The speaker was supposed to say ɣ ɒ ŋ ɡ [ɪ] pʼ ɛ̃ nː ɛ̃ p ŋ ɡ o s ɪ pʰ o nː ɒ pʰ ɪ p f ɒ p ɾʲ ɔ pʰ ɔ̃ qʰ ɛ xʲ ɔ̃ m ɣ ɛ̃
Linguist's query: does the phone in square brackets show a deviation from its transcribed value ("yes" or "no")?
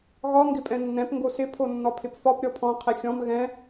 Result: no